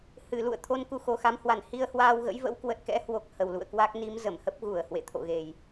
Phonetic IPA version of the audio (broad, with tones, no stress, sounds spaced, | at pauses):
h ɨ˧˩ l ṵ˧˨ ə̯ t̪ʰ o˧ n k u˧ x o˨˩ x a˨˦ m h w a˧˩ n h i˧ ə̯ h w aː˧ w ɣ ə̰˧˥ j v ə̰˧˥ w k w ə˨˩ t̚ k ɛ̰˧˥ h w o˨˩ k̚ h ə˨˩ w l ṵ˧˨ ə̯ k w a˦˥ k̚ n i˨˦ m z ə˧˩ m h ə˦˥ p̚ ɣ u˧˩ ə̯ h w ḛ˧˨ t̪ʰ o̰˧˨ ɣ e˨˩ j